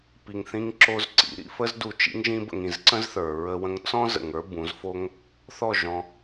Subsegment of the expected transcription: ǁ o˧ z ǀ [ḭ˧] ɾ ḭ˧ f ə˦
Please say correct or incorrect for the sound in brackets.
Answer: correct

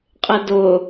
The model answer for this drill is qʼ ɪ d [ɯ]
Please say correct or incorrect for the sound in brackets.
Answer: incorrect: ʊ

